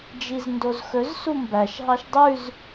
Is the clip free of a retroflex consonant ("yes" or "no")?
yes